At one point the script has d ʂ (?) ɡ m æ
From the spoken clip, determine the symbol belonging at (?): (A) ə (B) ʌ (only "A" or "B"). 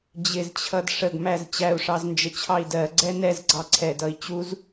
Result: A